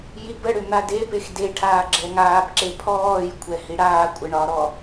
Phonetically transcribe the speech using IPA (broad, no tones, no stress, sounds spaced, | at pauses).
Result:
j i b ə ɽ ʏ n̪ a d e p e x d e ʈʰ aː ɡ͡ǁ ɛ ŋ aː p ǁ e pʰ ɔː j kʷʰ ɛ h i ɽ aː kʷʼ ə ɳ ɒ ɾ ɔ